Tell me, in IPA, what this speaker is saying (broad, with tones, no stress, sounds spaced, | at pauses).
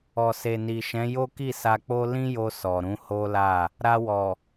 ɔ˨ s e˨ n i˨ ʃ ɛ̃˨˦ j o˦ k i˦˨ s a˧ k͡p o˦ l ĩ˦ j o˧ s ɔ˨ ɾ ũ˨˦ h o˦ l a˦˨ | ɾ a˧ w ɔ˨